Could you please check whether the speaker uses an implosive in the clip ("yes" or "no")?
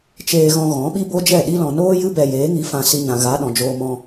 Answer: yes